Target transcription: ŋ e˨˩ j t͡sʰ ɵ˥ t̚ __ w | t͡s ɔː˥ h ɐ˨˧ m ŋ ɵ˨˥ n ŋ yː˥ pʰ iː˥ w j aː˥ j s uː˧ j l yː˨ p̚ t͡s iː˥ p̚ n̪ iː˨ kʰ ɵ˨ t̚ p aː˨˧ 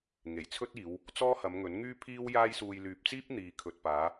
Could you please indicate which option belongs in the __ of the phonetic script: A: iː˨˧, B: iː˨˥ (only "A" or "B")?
A